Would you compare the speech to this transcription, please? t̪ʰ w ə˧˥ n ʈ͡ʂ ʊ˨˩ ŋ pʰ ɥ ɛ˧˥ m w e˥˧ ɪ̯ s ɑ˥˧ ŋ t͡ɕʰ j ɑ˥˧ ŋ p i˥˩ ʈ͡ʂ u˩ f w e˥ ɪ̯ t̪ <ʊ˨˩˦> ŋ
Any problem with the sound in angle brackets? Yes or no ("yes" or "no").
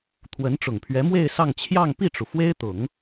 no